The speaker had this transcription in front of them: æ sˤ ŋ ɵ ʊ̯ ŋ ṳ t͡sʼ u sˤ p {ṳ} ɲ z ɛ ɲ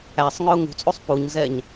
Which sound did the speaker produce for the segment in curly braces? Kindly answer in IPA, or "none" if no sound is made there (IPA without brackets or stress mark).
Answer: u